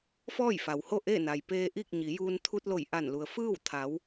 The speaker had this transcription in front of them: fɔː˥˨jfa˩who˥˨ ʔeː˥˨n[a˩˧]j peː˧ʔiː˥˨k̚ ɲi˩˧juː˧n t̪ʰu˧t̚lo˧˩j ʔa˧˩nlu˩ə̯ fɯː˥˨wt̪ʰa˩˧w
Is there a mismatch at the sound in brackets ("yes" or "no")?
yes